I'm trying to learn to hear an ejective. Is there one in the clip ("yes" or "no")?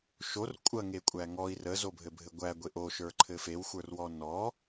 yes